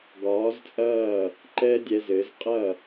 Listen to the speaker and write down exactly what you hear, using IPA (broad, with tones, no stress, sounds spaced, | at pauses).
ɡ ɒː˩˥ z t͡sʼ ɐː˥˩ | ǃ ɛː˥ dʲ ɛ˧ z ɘː˩˥ z qʼ ɐ˥˩